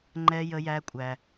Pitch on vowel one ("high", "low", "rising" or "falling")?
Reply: high